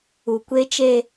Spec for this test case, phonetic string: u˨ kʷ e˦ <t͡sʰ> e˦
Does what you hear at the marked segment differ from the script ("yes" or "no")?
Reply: yes